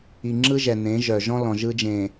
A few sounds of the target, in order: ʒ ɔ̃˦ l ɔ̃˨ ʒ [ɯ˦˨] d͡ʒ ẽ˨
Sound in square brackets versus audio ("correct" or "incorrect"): incorrect